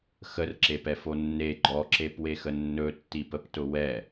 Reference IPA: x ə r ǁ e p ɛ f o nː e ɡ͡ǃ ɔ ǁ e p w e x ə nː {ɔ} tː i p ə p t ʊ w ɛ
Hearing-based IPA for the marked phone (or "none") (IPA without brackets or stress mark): ɵ